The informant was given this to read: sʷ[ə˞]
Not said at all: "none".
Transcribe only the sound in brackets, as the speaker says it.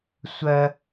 ɜ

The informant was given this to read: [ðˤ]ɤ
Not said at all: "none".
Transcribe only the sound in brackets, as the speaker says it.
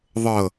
ðˤ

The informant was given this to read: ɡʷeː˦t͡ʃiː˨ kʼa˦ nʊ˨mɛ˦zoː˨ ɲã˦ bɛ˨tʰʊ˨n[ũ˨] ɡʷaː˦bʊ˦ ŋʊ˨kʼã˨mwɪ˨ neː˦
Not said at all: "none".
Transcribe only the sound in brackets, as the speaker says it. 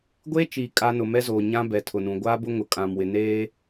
ũ˨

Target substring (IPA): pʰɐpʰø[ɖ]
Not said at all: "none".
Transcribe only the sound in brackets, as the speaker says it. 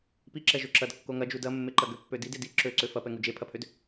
d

